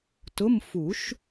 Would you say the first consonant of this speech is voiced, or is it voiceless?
voiceless